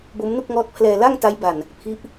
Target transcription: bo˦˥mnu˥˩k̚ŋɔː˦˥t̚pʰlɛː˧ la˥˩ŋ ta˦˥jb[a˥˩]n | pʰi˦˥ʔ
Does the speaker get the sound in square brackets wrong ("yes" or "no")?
yes